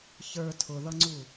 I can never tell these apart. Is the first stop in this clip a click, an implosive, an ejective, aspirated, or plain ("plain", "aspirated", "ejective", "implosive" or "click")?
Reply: aspirated